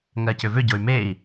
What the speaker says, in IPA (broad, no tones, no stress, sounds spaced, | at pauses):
ŋ ɜ c ʏ v ʏ ɟ o y̯ m e i̯